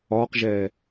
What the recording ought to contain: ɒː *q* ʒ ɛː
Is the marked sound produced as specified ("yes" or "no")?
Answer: yes